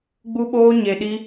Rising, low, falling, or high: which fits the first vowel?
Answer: high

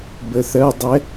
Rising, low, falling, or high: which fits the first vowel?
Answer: rising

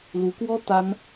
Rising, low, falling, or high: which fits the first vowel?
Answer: rising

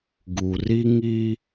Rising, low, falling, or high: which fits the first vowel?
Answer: low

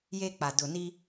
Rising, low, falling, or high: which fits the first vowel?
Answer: high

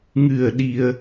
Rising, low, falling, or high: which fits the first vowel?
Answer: low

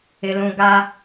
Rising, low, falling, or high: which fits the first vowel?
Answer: low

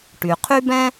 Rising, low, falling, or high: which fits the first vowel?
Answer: low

